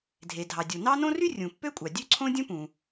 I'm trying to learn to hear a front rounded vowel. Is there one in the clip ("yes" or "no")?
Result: yes